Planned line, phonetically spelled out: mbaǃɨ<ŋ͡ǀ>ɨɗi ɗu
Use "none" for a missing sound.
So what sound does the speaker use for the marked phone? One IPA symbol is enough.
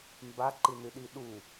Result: n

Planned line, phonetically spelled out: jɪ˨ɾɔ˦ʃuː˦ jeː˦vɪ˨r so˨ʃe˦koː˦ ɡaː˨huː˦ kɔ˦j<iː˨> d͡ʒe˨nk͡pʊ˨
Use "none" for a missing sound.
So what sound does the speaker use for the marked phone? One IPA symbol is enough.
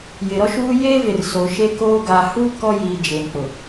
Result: iː˨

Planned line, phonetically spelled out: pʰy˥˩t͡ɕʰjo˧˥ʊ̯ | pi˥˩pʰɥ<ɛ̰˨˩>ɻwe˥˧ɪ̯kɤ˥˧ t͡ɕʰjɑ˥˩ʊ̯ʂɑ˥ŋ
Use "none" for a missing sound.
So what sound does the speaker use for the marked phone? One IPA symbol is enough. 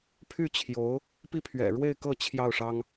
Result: ɛ̰˨˩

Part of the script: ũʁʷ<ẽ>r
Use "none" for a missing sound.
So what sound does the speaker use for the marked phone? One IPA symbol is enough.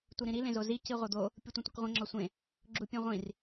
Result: ĩ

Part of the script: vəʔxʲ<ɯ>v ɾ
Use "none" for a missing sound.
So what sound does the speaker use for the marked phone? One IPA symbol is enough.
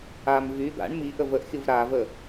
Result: ɯ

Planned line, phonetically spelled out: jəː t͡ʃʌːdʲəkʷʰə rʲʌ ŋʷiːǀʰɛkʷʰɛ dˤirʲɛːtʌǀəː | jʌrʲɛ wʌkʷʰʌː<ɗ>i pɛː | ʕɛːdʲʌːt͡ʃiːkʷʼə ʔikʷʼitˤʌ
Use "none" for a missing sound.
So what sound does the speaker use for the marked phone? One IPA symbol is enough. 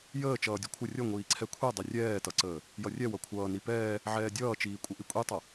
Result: n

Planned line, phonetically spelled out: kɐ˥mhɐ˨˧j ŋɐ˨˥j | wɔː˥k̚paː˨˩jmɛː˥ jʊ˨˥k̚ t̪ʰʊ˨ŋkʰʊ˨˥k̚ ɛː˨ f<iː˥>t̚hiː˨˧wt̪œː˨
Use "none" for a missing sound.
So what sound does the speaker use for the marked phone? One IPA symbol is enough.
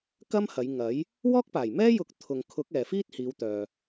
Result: iː˥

